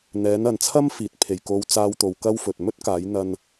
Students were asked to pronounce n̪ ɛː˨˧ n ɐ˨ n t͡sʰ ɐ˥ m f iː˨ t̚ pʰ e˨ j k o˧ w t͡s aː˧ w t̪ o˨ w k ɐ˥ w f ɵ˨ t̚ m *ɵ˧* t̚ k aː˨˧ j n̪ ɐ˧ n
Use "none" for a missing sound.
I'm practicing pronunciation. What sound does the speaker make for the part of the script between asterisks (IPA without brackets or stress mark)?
ɵ˥